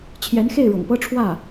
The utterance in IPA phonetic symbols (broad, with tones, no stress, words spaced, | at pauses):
t͡ɕʰjɛ˧˥nxe˥˩ɪ̯ɻɤ̰˨˩ŋpɤ˥ ʈ͡ʂʰwä˥˩